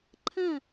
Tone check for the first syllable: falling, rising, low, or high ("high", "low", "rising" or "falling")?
falling